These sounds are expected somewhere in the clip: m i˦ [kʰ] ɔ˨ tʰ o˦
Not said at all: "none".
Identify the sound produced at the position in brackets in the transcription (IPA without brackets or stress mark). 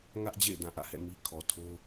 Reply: kʰ